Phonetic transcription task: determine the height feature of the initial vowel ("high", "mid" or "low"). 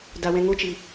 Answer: low